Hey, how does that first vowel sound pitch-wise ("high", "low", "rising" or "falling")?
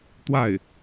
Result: falling